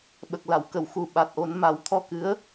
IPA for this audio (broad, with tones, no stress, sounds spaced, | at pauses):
ɓ ə˨˩ k̚ l a˨˩˨ w k ə˨˩˨ w x u˨˩ ɓ a˨˩ t̚ ʔ o˨˩˦ n m a˨˩˦ w t̪ʰ ɔ˧ k ɨ˧˥ ə̯